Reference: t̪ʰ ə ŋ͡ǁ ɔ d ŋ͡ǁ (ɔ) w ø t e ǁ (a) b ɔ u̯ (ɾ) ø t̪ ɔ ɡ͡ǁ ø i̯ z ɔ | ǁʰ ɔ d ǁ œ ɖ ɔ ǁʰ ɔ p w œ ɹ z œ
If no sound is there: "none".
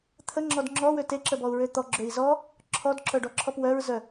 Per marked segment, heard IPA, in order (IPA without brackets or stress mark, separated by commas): ɔ, ə, ɹ